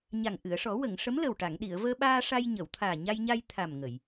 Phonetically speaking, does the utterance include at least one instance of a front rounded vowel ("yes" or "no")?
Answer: no